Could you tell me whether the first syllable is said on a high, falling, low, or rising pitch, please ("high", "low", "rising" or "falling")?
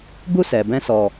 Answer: high